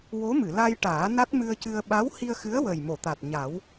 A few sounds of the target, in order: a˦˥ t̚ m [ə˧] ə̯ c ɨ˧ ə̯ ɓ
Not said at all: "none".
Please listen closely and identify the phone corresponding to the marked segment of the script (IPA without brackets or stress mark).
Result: ɨ˧